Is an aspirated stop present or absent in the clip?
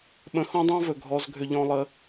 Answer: absent